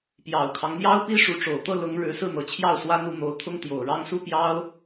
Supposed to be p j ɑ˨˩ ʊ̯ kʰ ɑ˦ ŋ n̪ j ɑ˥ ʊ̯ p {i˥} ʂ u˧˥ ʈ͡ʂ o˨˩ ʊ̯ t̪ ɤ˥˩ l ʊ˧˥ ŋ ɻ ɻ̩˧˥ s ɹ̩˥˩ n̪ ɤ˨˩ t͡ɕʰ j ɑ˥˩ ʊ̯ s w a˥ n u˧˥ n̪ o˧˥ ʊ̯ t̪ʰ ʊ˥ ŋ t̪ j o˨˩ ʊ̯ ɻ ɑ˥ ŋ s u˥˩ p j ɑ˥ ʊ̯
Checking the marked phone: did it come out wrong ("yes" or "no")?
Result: no